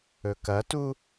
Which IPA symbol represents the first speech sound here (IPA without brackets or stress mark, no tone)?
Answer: ɵ